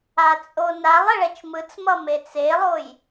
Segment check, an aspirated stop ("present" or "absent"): absent